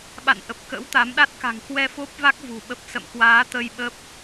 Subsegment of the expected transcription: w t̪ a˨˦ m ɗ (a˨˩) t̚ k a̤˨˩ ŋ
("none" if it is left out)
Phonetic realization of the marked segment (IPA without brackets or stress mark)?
a˦˥